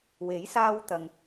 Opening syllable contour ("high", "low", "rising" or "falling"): rising